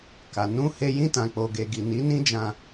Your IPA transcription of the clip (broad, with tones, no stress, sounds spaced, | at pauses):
k a˨ n ũ˧ h e˧ j ĩ˧ t ã˨ k͡p o˨ ɡ e˨ ɡ i˨ n i˨˦ n ĩ˦ d͡ʒ ã˧